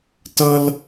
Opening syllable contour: high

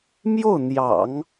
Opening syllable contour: falling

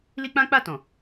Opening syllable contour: high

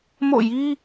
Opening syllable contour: falling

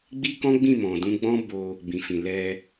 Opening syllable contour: high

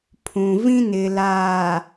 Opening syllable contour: low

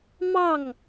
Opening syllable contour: falling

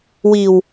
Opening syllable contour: low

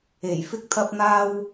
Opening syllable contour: low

